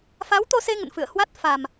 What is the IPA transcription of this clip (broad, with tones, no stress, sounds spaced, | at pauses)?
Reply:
f a˨˦ w t̪ o˧ s e˧ ŋ ə̰˧˨ n f ɨ̰˧˨ ə̯ h w a˦˥ t̚ f a˨˩ m